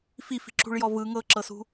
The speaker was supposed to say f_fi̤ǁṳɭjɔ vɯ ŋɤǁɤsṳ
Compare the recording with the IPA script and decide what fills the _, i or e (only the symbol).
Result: i